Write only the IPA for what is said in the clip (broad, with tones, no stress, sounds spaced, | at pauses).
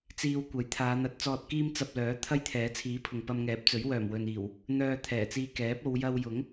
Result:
t͡s iː˧ w kʷ ɐ˨˥ j t̪ʰ aː˨˧ n̪ ɐ˨˥ t̚ t͡s ɔː˧ t̚ k iː˥ m t͡s ɐ˧ p̚ l œː˨˥ t̪ʰ ɐ˥ j t̪ʰ ɛː˨˥ t͡sʰ iː˨˥ pʰ ʊ˨ ŋ p ɐ˧ m ŋ ɛː˨˥ p̚ t͡s ɵ˨˥ ɥ w œː˨˩ m w ɵ˨ n iː˨˩ w | n̪ œː˧ t̪ʰ ɛː˨˩ t͡s iː˧ k ɛː˨˥ p̚ o˨˧ w j ɐ˧ w j ʊ˨˥ ŋ